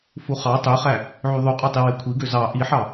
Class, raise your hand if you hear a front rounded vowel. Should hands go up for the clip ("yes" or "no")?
yes